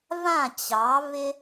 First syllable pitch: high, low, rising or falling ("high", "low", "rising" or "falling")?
falling